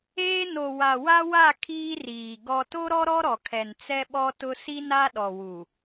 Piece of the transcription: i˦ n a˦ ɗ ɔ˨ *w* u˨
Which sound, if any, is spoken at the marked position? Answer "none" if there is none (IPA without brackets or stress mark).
w